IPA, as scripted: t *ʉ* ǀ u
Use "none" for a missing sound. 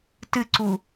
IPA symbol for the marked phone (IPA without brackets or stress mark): ɨ